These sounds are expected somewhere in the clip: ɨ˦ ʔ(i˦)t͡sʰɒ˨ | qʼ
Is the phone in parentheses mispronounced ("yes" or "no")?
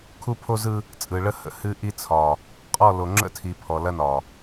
no